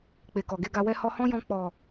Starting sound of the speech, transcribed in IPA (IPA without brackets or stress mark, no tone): k͡p